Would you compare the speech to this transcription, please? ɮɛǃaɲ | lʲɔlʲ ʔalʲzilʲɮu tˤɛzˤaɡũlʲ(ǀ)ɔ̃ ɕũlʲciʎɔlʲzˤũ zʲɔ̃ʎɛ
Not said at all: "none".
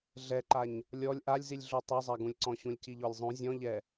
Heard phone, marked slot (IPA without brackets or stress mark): ǀ